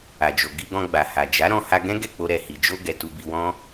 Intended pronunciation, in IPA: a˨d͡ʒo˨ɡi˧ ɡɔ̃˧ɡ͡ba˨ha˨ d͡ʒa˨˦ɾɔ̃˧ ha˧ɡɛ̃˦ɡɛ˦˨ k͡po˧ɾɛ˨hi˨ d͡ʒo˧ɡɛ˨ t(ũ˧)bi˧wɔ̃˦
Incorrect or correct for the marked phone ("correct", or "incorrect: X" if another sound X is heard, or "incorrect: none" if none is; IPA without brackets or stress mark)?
incorrect: u˧